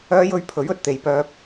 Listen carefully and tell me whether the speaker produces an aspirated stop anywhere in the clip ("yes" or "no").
yes